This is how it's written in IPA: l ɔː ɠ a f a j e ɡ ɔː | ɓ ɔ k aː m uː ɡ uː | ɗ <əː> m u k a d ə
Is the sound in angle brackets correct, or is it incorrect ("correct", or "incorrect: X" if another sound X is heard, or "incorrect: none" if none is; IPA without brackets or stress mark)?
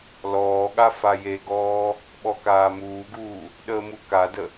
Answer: correct